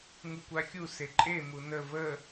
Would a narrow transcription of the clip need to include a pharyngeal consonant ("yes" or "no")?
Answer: no